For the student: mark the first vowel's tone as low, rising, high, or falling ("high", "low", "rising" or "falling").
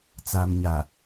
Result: low